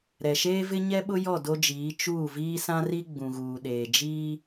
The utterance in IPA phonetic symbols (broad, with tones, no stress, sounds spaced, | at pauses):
ɾ ɛ˨ ʃ eː˦ v ɪ˦ ɲ ɛ˦ ɓ ʊ˦ j ɔ˦˨ d o˦ d͡ʒ iː˨˦ t͡ʃ uː˦˨ v iː˦ s ã˦ r i˦ ɡ͡b ũ˨ ɣ uː˨ ɗ eː˨ d͡ʒ iː˦